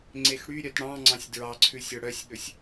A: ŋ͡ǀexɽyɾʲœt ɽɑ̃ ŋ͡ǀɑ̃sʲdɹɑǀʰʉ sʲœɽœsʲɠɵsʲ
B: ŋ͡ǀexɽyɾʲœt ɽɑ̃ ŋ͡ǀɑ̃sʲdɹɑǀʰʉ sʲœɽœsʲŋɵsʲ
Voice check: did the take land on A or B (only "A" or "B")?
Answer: A